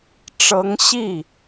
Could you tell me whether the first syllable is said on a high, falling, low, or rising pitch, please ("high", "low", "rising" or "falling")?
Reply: rising